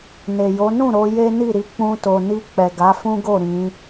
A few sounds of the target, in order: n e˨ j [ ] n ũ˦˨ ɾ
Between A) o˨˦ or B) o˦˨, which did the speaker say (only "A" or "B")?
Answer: A